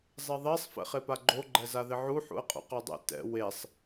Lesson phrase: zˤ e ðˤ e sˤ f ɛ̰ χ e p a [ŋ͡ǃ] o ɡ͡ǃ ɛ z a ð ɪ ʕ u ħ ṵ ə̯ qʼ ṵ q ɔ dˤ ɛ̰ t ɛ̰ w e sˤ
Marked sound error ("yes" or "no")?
yes